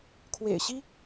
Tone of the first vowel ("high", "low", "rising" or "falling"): low